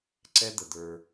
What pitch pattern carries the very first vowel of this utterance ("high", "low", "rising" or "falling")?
high